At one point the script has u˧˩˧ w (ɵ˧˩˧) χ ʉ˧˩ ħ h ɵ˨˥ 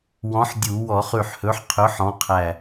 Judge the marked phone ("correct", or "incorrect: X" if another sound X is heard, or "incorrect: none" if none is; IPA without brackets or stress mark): incorrect: ɔ˧˩˧